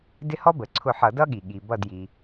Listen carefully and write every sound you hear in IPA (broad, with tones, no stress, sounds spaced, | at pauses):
d ɪ˦ h ɔ˦ b ə˩ ǀʰ ʊ˧˩ ħ ʌ˧˩˧ d ʌ˦ ɠ i˩ ɠ i˩ b ʌ˧˩ d j i˩